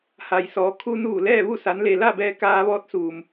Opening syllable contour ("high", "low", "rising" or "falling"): low